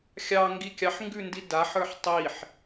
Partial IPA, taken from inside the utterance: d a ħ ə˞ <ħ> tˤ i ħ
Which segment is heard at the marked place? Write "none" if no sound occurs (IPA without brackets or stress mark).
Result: ħ